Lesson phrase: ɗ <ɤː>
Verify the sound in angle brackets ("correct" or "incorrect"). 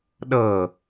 correct